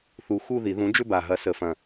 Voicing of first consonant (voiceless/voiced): voiceless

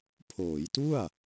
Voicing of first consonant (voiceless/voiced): voiceless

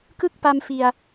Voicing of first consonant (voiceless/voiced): voiceless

